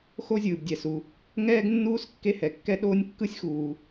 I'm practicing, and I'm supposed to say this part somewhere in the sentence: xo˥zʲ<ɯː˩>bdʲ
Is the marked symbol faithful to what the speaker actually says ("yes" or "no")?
yes